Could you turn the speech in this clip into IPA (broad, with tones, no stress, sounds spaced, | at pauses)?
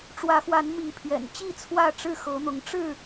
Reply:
ʈ͡ʂ w ä˨˦ x w a˨˦ n m i˨˦ pʰ ɥ ɛ̰˨˩ n t͡ɕ i˥˨ t͡sʰ w ä˥˨ ʈ͡ʂ ɻ̩˥˨ x ɤ˨˦ n̪ ʊ˨˦ ŋ ʈ͡ʂ ɻ̩˥˨